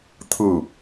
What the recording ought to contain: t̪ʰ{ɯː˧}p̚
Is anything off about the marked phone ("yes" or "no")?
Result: yes